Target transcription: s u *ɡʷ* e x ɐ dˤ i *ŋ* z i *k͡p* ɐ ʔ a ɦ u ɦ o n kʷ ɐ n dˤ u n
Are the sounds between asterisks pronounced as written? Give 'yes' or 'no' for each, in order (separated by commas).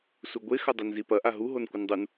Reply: yes, no, no